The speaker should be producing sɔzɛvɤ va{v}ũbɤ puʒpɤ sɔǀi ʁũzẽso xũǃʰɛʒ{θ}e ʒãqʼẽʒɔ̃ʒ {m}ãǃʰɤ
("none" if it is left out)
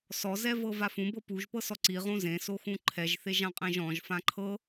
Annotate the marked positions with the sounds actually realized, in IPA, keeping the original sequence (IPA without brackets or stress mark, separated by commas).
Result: f, θ, f